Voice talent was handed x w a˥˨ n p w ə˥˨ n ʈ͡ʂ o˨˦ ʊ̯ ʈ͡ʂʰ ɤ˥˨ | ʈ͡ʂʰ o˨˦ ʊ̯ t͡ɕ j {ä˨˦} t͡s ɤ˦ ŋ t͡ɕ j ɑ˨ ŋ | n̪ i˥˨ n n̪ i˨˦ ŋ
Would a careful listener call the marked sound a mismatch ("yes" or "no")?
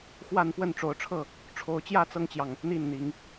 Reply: yes